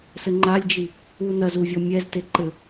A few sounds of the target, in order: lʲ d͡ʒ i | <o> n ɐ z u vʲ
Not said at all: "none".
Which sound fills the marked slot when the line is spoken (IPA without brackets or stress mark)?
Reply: u